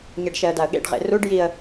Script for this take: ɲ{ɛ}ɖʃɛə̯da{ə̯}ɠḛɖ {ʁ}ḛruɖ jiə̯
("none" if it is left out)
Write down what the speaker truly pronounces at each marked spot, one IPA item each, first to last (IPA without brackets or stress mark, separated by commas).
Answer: ɛ, ə̯, ʁ